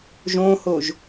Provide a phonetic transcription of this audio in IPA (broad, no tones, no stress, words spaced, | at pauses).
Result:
ʒõhoʒ